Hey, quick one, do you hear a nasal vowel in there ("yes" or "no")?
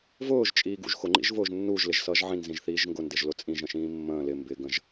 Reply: yes